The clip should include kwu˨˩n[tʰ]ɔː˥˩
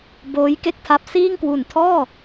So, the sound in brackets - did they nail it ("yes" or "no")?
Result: yes